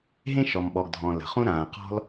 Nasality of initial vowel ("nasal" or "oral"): nasal